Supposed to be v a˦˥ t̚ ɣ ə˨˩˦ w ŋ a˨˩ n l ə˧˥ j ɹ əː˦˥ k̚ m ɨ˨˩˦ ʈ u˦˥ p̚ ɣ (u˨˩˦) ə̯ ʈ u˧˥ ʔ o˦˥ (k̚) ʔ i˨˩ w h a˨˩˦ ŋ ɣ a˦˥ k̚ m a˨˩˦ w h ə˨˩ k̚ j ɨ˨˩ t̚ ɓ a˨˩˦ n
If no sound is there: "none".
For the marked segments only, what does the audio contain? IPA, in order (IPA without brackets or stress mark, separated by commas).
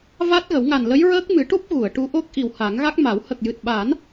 u˨˩˨, k̚